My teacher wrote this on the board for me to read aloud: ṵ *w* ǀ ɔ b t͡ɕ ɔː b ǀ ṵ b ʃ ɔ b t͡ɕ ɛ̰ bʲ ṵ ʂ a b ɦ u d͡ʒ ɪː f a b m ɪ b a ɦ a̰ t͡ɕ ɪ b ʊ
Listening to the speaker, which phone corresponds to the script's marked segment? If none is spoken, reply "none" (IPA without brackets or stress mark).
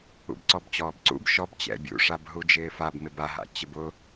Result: b